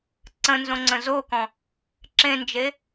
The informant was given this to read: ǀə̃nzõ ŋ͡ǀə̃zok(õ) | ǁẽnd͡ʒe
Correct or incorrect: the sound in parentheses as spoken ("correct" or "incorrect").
incorrect